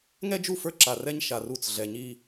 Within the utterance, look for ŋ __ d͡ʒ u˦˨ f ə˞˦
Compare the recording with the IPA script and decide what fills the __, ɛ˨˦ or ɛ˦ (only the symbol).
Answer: ɛ˦